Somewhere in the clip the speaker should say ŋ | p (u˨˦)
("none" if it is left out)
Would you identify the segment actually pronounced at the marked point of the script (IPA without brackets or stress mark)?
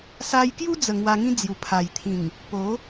o˨˦